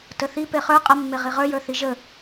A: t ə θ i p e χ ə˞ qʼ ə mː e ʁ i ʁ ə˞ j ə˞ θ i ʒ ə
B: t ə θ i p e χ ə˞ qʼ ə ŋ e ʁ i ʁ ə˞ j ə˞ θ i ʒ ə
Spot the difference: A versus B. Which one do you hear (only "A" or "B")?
A